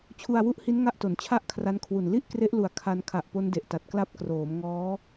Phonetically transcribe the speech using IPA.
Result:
t͡ɕʰ u˧ a̯ w u˦˥ ʔ h i˦˥ n ŋ a˦˥ ʔ t o˩˦ n t͡ɕʰ a˥˩ ʔ kʰ r a˦˥ n kʰ w u˨˩ n l i˥˩ ʔ k r e˦˥ ʔ l u˨˩ a̯ kʰ a˧ n kʰ a˨˩ ʔ p o˦˥ n d e˨˩ ʔ t a˨˩ t̚ k l a˦˥ p̚ k r oː˩˦ m ŋ ɔː˦˥

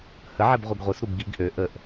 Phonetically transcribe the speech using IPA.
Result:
h ə ʕ ɛ b ʁʷ i ɡ ʁʷ i s ɾ u b ɡ i ɡ ʔ ø ʔ ə ʔ

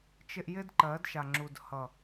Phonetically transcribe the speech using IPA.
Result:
t͡ʃ ɪ˧ ʔ j ɪ˦ d ǃ ɜ˨˦ d ʃ a˨ ŋ͡ǁ u˨ d h ʌ˨

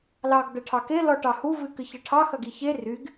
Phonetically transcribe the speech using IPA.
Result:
l ɑ ɡ d̪ ɐ ʈʰ ɑ k e l ɔ ʈ ɑ h u v ɨ k ɨ ç ɐ ʈʰ ɑ x ɐ ɡ i ç e r y ɡ

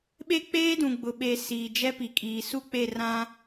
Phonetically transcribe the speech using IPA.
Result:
ɓ e˦ k͡p eː˦ d ũ˨ ɡ͡b ʊ˨ ɓ e˨ s iː˨ d͡ʒ ɛ˦ p i˨ kʼ iː˨ s u˦˨ k͡p e˦˨ r ã˦

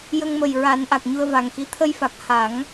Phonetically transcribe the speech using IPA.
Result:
j ə˧ ŋ m ə˨˩ j ɹ a˨˩˦ n ʔ a˨˩ k̚ ɲ u˧ ə̯ v a˨˩ ŋ x i˧˥ t̪ʰ ə˧ j f a˨˩ k̚ h a˨˩˦ ŋ

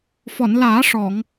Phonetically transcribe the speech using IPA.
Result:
f ɔ˨˩˨ n l aː˨˩˦ ʂ ɔ˨˩˨ ŋ

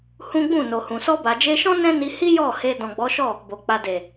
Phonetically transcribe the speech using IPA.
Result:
h ũ˦ ɡ͡b ũ˦˨ n o˨ h ũ˨ s ɔ˧ b a˨ d͡ʒ e˧ ʃ ɔ̃˦ n ɛ̃˦ n i˧ h i˦ j ɔ˦˨ h e˧ d ɔ̃˨ ɡ͡b ɔ˨˦ ʃ ɔ˦˨ | b o˨ k͡p a˨ d e˨

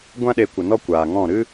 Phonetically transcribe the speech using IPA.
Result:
ɡʷ ã˦ ɗ e˧ kʷ ə˨ n ɔ˦ kʷ aː˨ ŋ ɔ̃˦˨ ɾ ɨ˦

